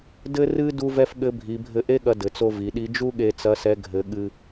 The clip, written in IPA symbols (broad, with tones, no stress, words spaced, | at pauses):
dɘ˧rɨ˧ du˧vɛ˧f ɠɘ˧˥bʱi˩˧bʱɘ˧ ʔe˥ɠɐ˧dɘ˩˧t͡so˧ vi˩˧ɗi˧˥ d͡ʒu˥ɠe˧t͡sɐ˧˥sɛ˧˥ ɡʱɘ˧˥ ɠɨ˧